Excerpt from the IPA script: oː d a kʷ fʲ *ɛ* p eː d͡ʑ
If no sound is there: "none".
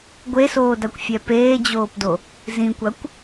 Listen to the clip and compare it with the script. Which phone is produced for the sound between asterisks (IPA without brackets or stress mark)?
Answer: ɛ